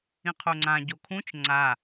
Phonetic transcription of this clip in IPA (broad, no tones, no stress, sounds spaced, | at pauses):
ĩ qʰ o ŋ͡ǀ ã ɟ o kʰ ũ t͡ʃ ŋ͡ǀ a